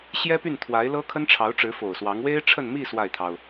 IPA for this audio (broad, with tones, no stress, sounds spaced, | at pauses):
ɕ j ɛ˥ p y˥˩ n t̪ʰ w a˧˥ ɪ̯ l ɤ˥ kʰ ə˥ n ʈ͡ʂʰ ɑ˧˥ ʊ̯ ʈ͡ʂ ɻ̩˧˥ f o˨˩ ʊ̯ s w ɑ˧˥ ŋ w e˥ ɪ̯ ʈ͡ʂʰ ə˥˧ n m i˥˧ s w a˥˩ ɪ̯ t̪ʰ ɑ˩ ʊ̯